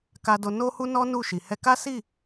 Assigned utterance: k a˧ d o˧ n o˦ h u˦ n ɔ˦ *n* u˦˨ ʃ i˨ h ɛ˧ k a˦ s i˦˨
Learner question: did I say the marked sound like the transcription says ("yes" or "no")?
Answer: yes